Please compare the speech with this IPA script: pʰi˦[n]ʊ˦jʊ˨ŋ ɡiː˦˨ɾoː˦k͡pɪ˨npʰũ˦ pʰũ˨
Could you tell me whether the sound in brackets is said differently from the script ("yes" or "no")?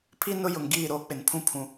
no